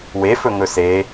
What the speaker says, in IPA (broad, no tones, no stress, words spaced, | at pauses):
wefɵ ŋɵse